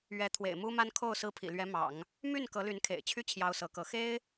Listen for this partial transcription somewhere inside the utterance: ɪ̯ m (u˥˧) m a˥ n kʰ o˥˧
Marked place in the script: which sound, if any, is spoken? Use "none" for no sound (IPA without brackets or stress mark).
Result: u˥